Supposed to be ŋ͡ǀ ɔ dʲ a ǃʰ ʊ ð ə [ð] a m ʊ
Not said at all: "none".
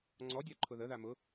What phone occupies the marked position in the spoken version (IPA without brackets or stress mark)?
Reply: ð